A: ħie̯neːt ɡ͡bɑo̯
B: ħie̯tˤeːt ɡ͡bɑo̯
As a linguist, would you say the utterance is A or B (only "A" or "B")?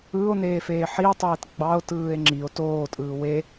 B